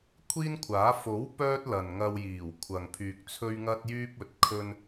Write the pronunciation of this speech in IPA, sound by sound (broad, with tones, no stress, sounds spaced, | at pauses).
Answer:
kʷʰ iː˥ n kʷʰ aː˨˥ f o˨˥ w p œː˥ t̚ l ɐ˨ n ŋ ɐ˧ w j iː˨˩ w kʷʰ ɐ˨ ŋ pʰ yː˧ k̚ t͡sʰ ɵ˥ ɥ ŋ ɐ˥ t̚ j yː˥ p̚ ɵ˨˥ t̚ kʰ ɵ˥ n